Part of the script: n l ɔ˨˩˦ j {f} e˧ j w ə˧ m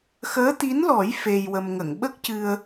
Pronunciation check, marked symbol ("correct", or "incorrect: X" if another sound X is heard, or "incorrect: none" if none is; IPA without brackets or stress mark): correct